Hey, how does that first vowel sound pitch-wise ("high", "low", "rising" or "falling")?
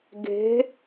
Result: rising